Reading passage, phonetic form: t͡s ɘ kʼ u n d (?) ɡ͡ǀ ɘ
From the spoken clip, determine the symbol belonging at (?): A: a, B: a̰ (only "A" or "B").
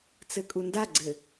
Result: A